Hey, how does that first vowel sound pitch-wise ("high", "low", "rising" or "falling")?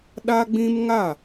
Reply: high